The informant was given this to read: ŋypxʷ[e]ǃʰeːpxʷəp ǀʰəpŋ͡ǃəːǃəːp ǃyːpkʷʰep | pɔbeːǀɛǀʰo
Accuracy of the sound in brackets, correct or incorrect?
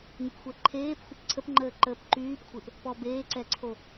incorrect